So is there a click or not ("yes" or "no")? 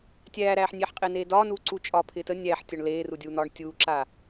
yes